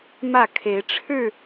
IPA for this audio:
mä˥˨kʰe˨˦ɪ̯ʈ͡ʂʰɻ̩˥˨

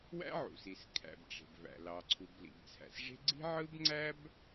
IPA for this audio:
wæ̰˥ʕṵ˩si˩s kʰæ̰˩bʈ͡ʂe̤˩bvæ̰˩ lɑ˩ǀʰu˩b lḭ˩bt͡sʰæ̰˩sʐe̤˥ ɡ͡ǀi̤˥ʕɯ˥bŋ͡ǀæ˥b

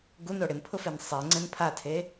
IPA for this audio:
ɡuno ɽɪnpʰʊfen sˤɛŋ͡ǀɛ̃n pʰatʰe

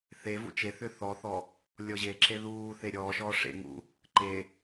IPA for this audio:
θevṵ t͡ʃeθʏ θɔθɔ | lʲɔʑeǁe ðuːθe ɾʲɔːʃɔː ʂḛ ŋṵ | ǃe

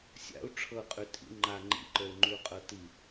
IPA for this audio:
sʲa̰u̯ ʈ͡ʂʰɤqʼʉ tʼḭ ŋ͡ǃa ŋ͡ǃḭǃə˞u̯ŋ͡ǃʉu̯qʼɤ ti

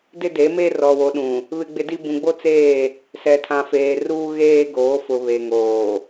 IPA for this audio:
dɪ˦de˨˦me˦ rɔ˨wo˨˦ɗũ˨ | βɪ˦ɡ͡bɪ˦ di˦ bũ˨ɡ͡bo˦ t͡seː˦˨ | sɛ˨tʰã˨feː˨ruː˦ ɣeː˦ ɡoː˨˦fʊ˨ βe˨ŋoː˨

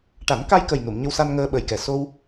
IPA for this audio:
ʈa˨˩˦nka˧jkə˨˩j nu˨˩˨mɲə˧wsa˧n ŋəː˧ɓə˨˩jkɛ˨˩ so˧w

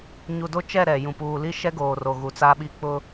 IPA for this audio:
ɲu˨do˦t͡ʃɛ˦˨ ɾɛ˨jũ˨ puː˨li˦ ʃɛ˦ɡoː˨ro˨ɣu˨ t͡sa˦ɓi˦ k͡pʊ˦

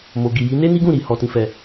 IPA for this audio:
mo˨ɡi˨ji˨˦ ne˦ni˦ɡũ˦˨ ɾi˨ hɔ˨tĩ˨fɛ˨

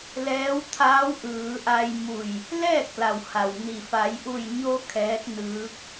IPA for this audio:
lɛː˧˥wt̪ʰaː˧˥w ʔɯː˩˧ʔa˧jmu˧˩j | lɛː˥˨k̚la˩wha˩w ni˩ fa˩˧jʔu˧˩jɲo˧ kʰɛː˧˥t̚nɯː˧˥k̚

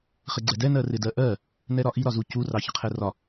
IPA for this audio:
χɪɡ͡ǀɛdɛ nɜrɪdɜʔɜ | nɛɾɒʔi ɾɒzucu rɑçəqʰɛrɒ

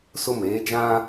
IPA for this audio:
sʊ˦˨meː˦d͡ʒã˦

